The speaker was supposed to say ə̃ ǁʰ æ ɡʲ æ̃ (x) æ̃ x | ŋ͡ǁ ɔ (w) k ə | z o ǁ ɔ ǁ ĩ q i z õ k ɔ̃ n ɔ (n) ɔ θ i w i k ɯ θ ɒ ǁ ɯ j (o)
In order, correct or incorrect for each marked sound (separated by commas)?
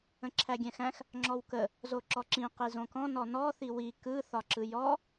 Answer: correct, correct, correct, incorrect